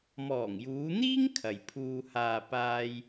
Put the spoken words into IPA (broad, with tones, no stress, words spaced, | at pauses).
mɔː˨˩ŋjuː˨˧n̪iː˥ŋ kʰɐ˨jpʰuː˧ haː˨ paː˧j